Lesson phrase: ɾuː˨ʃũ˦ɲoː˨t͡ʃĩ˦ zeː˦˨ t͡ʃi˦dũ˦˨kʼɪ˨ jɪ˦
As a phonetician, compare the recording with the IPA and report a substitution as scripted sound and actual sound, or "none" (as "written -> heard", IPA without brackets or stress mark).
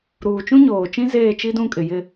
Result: ʃ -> t͡ʃ